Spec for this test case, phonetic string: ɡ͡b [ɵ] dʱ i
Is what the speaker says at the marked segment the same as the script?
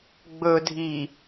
yes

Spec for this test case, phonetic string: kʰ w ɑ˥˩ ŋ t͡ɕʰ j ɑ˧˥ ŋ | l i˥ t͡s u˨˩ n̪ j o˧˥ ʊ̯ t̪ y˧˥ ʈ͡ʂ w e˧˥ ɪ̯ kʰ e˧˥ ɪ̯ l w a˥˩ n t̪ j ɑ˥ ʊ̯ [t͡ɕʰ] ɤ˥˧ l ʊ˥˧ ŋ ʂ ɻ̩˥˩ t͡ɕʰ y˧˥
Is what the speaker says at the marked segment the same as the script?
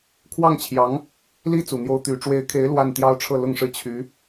no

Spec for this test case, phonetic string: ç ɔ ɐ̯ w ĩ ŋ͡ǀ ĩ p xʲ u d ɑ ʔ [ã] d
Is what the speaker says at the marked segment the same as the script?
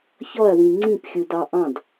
no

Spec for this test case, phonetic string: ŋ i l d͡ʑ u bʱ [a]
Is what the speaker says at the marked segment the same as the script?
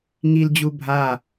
yes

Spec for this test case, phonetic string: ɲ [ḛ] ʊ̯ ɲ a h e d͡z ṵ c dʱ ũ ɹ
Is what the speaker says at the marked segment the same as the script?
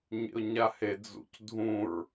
yes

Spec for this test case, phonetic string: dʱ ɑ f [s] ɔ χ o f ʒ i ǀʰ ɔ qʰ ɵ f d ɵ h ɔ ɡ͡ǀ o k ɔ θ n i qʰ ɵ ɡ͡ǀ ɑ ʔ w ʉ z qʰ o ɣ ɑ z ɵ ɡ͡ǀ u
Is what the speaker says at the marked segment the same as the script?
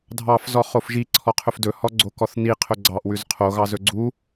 no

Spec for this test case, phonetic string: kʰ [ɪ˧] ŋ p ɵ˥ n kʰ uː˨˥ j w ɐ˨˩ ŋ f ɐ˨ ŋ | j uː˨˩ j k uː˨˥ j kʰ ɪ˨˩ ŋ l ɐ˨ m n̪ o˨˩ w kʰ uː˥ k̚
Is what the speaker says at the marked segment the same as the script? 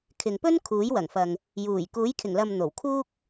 no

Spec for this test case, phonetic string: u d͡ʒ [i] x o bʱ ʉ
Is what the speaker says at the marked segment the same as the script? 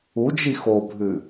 yes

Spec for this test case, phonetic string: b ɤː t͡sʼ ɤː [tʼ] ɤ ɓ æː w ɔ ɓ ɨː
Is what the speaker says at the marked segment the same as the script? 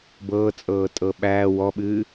yes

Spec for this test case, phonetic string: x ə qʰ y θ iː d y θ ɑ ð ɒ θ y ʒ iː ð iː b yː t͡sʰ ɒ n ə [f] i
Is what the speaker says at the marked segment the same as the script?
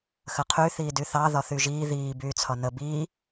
no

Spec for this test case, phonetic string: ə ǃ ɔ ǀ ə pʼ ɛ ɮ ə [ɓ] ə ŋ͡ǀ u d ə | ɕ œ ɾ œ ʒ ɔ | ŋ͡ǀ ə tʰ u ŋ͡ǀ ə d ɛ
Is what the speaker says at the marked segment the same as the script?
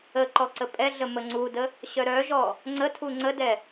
no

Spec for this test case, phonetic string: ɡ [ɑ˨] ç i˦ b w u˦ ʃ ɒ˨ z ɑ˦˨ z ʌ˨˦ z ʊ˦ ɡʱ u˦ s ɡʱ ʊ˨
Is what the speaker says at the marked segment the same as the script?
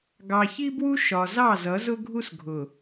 yes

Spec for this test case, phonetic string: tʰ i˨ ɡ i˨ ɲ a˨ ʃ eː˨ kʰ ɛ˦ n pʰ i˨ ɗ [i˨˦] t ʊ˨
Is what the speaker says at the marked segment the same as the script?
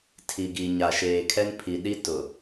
no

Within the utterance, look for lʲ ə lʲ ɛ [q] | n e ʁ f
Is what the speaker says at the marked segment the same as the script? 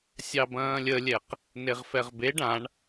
yes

